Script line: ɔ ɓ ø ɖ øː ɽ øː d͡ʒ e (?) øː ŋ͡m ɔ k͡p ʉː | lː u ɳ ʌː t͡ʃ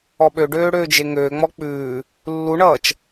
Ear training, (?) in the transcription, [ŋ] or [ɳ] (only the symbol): ŋ